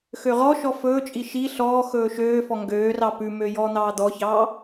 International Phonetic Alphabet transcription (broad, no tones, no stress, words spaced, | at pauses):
xøʁɔʃɔ fɵːt͡ʃʼi ʃi ɬɔː xɵːʃøːfɔ ŋɡøːrɑ pʉmø jɔːn̪ɑːd̪ɔçɑː